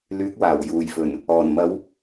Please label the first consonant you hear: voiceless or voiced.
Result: voiced